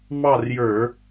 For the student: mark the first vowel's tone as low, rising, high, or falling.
falling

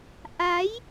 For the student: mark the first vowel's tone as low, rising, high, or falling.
rising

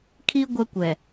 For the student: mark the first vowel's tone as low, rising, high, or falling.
high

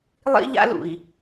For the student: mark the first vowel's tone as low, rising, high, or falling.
high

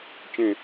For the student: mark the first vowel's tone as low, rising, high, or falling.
falling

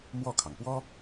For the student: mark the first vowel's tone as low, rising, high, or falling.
falling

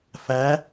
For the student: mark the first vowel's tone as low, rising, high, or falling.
rising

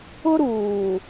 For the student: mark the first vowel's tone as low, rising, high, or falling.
high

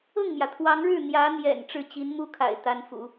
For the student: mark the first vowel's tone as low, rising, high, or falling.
falling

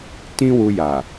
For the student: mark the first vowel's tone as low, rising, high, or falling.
high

